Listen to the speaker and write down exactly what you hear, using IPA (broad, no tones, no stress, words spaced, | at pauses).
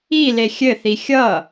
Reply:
ile xʲɘθi xʲʌ